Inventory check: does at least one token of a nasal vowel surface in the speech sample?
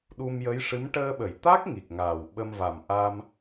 no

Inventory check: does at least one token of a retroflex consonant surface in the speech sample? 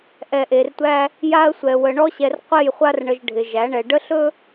yes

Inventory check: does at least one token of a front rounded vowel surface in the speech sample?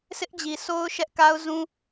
no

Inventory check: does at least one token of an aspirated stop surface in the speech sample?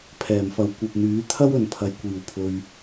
yes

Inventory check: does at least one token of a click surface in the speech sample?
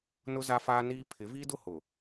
no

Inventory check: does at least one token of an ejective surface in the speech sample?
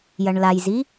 no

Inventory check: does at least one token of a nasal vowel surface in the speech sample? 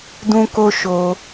yes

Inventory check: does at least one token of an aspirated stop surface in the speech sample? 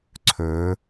yes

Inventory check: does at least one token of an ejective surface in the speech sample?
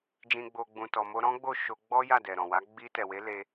no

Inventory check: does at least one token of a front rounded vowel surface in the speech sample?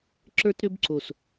yes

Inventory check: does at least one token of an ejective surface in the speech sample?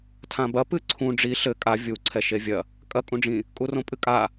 yes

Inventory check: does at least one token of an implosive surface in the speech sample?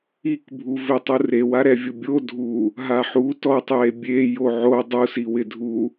no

